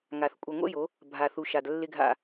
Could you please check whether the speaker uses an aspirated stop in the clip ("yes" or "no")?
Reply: no